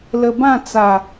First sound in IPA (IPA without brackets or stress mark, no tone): l